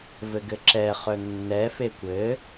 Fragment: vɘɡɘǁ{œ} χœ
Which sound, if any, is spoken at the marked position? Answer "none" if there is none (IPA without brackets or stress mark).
ɛ